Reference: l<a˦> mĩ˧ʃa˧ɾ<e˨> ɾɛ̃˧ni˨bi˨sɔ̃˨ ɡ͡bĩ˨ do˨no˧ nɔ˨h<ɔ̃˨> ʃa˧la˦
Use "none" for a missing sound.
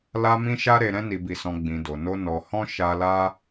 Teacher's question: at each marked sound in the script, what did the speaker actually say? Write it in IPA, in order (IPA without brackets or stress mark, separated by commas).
a˧, e˨, ɔ̃˧